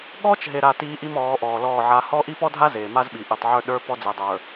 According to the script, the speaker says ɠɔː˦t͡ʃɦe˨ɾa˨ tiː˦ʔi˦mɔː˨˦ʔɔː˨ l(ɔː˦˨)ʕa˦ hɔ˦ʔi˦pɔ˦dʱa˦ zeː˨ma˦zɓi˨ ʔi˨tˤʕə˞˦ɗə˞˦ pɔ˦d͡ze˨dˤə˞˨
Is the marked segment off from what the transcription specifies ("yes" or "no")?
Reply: no